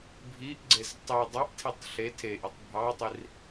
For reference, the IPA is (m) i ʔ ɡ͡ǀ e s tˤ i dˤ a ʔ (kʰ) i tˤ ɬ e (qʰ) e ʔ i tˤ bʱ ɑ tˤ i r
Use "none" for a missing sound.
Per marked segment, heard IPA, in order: bʱ, tʰ, tʰ

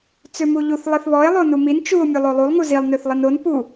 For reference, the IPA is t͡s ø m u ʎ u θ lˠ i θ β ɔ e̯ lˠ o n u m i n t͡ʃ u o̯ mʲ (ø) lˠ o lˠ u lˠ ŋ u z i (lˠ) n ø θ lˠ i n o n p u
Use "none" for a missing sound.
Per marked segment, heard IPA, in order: u, lˠ

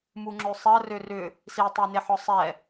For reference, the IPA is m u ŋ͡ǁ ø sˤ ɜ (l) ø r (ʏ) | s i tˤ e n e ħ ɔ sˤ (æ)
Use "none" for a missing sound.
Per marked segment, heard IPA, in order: r, ʏ, ɛ

